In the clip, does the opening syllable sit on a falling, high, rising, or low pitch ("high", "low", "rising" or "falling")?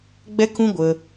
high